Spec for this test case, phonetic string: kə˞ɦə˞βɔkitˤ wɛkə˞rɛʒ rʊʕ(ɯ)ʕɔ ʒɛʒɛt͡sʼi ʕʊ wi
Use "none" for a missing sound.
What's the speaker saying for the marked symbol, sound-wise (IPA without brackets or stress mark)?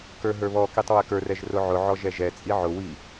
ʊ